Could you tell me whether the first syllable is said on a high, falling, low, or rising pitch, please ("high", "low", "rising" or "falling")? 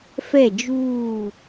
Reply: falling